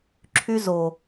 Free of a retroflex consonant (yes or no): yes